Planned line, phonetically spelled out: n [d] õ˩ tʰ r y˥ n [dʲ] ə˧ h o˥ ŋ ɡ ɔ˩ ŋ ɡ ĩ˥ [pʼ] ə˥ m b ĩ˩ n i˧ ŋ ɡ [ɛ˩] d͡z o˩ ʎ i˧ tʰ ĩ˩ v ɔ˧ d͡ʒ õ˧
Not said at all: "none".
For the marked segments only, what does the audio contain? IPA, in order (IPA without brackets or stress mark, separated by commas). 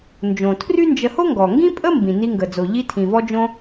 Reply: d͡ʒ, d͡ʒ, pʼ, ə˩